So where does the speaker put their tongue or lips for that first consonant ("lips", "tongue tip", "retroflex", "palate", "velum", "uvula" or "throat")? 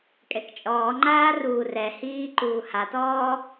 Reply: velum